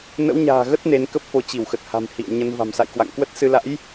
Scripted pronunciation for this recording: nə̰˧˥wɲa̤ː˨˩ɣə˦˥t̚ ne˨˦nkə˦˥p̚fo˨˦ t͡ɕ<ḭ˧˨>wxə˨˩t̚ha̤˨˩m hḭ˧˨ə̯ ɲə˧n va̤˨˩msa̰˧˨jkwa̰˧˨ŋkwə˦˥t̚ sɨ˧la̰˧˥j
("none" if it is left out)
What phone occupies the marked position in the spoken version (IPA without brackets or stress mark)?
i˧˩